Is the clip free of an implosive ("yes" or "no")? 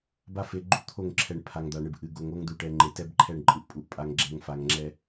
yes